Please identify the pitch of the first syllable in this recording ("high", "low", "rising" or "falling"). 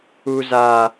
high